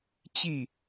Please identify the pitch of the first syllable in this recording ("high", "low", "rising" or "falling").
falling